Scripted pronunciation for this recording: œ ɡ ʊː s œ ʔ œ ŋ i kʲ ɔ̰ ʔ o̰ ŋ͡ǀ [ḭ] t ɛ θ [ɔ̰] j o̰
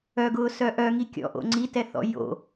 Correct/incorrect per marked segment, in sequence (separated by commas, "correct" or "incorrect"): incorrect, correct